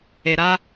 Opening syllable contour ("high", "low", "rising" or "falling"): low